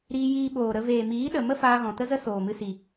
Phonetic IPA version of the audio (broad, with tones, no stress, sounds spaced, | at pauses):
ɾ iː˧ j iː˧ ɓ oː˨ ɾ ə˧ v eː˨ m iː˨˦ ɗ ə˨ m ə˦ f aː˧ ɣ ɔ̃˨ t ə˦ z ə˦ s oː˨ m ɨ˧ s i˨